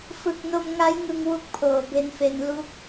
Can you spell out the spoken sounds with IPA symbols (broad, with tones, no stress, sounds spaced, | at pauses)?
f ɯ˨˩ k̚ n o˧ m ŋ a˦˥ j ŋ ɯ˧ ŋ w u˦˥ k̚ pʰ oː˨˩ b e˧ n f e˧ n l u˦˥ k̚